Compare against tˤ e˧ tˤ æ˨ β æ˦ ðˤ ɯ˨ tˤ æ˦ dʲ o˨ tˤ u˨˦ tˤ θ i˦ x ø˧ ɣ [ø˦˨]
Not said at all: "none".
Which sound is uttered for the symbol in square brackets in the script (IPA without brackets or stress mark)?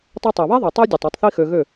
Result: ø˦˨